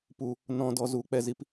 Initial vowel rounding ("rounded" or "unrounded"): rounded